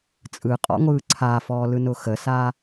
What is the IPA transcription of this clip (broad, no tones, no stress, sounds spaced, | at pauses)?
t͡sʼ ɯ qʼ ɔ̰ ŋʷ ɯː ǀʰ a f ɔː l ɯ n ʊ x ə s a